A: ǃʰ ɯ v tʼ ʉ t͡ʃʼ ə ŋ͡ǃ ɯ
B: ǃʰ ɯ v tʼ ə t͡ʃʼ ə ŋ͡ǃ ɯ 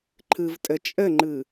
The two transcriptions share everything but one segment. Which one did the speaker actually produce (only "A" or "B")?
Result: B